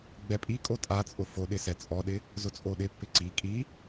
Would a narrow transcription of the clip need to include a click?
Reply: yes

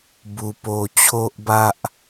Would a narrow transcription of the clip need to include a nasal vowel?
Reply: no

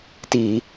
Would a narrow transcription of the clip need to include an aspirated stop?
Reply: no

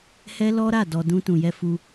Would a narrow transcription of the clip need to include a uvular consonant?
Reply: no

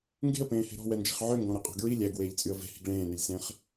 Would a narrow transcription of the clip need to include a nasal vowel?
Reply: yes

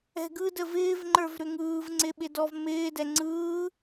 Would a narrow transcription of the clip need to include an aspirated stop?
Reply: no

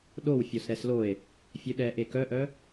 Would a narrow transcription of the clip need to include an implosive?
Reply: yes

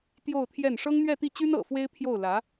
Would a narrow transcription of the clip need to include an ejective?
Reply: no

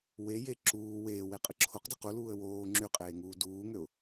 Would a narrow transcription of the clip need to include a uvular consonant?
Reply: yes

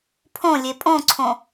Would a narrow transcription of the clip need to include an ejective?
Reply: yes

